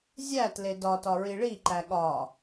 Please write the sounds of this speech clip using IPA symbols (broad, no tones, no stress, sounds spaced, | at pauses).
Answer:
zʲ æ t l e d ɒ t ɒ ɹ i ɭ i ǃ æ ɠ ɒ